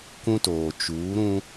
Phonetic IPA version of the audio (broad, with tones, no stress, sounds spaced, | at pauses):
k ũ˦ t oː˨ t͡ʃ uː˨˦ ɾ ũ˦